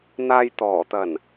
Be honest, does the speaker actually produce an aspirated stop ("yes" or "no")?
no